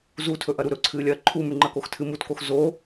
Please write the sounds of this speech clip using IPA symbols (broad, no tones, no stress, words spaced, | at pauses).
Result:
zutʰɵʔɐ ɾuɾɵǀʰɨːlʲɐː ǃʰumʉŋ͡ǃɐ koxtʰɨmutkox zo